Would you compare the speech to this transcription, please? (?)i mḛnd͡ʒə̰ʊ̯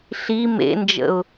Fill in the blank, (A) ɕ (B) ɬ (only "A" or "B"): B